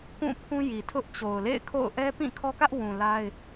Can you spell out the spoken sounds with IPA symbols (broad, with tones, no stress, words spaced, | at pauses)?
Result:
kũ˦˨pʰũ˦ji˨tʰʊ˦ʔ t͡ɕo˨ʊ̯ lḛ˦˨ɪ̯kʰo̰˦˨ʊ̯ ʔɛ˦pĩ˦˨kʰɔ˦kä˦ʔ wũ˨la˦ɪ̯